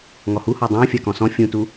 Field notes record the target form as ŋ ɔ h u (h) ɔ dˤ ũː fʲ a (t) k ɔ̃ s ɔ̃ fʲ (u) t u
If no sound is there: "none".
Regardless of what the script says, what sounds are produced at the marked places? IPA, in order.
h, none, ũ

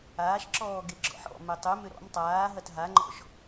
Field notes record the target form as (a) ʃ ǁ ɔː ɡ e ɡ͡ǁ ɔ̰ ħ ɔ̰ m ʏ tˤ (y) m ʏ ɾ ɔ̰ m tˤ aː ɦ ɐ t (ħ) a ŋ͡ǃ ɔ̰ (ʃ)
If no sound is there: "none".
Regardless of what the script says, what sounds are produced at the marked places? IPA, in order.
aː, y, ɦ, ʃ

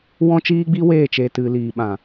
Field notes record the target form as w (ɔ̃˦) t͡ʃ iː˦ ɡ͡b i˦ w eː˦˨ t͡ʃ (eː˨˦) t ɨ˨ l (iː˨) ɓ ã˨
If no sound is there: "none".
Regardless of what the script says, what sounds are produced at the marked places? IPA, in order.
ɔ̃˦, eː˨, iː˨

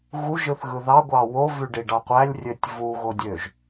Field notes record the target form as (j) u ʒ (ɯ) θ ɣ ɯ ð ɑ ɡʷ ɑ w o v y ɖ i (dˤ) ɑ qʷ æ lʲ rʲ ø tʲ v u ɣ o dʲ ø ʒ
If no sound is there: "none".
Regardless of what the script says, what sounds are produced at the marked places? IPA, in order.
ɣ, ɯ, ɖ

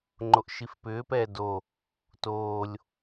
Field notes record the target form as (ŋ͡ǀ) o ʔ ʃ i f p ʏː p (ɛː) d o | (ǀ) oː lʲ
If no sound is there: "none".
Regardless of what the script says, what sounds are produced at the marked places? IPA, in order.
ŋ͡ǃ, ɛː, t

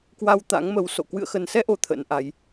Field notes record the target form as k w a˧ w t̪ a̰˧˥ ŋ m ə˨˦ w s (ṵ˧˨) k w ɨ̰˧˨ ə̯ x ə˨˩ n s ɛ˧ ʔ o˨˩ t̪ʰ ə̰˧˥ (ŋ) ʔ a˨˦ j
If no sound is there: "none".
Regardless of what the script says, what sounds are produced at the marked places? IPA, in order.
o̰˧˨, n

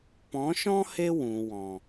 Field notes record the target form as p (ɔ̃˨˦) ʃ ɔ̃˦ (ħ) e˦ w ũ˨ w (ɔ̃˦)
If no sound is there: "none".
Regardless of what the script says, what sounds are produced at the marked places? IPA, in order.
ɔ̃˨˦, h, ɔ̃˨

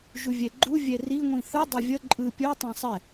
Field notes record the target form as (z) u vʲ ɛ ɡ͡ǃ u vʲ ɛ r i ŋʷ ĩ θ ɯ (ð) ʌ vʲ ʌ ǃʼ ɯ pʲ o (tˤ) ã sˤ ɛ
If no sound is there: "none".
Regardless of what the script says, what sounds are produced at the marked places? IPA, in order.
ʒ, dˤ, tˤ

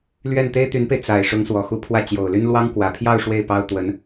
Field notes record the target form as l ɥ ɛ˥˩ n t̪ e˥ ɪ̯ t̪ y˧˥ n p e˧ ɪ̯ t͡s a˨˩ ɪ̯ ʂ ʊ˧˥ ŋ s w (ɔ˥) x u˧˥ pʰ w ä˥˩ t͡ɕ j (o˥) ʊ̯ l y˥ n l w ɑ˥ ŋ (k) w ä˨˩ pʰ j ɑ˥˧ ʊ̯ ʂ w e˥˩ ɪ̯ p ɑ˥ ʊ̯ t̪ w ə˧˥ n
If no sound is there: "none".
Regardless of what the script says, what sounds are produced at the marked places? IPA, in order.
ɔ˨˩, o˨˩, k

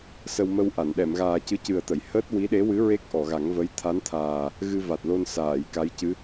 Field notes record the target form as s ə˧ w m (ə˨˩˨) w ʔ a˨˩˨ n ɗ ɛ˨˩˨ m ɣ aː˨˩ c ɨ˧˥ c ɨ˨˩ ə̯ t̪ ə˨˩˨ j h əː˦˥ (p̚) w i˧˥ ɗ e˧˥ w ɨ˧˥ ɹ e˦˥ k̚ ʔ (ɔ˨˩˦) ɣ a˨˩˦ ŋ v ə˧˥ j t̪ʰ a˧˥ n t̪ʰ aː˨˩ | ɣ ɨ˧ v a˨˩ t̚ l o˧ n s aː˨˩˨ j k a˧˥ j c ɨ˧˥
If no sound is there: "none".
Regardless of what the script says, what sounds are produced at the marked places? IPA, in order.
ə˧, t̚, ɔ˨˩˨

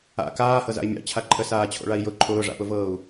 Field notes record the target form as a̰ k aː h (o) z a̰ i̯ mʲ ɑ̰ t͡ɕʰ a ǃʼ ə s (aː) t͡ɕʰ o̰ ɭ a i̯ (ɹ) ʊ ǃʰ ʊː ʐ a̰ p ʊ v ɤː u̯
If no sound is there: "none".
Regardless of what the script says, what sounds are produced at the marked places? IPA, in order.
ɤ, aː, j

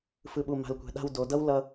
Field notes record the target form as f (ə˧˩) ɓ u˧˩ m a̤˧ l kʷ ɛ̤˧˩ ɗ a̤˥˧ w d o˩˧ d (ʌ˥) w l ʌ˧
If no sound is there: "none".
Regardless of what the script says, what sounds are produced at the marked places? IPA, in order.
ɯ˧˩, ʌ˥

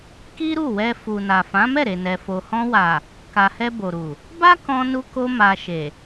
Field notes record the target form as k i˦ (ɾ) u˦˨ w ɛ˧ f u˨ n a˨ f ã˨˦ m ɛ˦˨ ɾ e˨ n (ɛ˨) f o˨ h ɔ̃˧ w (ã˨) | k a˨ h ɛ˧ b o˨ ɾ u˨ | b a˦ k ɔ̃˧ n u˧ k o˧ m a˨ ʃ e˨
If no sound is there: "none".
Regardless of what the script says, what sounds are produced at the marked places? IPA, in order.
ɾ, ɛ˨, a˨

